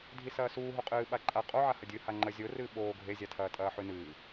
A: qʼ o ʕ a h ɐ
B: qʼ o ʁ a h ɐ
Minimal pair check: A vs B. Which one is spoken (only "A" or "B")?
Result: A